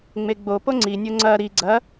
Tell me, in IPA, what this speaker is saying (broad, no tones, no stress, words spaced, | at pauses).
ŋ͡meɡ͡bopo ŋ͡ǀinʲo ŋ͡ǀɐ ɾi ɡ͡ǀɐ